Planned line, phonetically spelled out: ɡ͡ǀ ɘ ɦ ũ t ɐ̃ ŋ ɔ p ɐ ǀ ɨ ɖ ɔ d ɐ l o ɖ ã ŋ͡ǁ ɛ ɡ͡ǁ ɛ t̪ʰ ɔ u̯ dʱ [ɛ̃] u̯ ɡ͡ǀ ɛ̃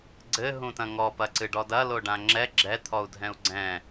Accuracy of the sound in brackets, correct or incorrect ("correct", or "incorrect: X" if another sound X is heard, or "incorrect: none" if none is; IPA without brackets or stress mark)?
correct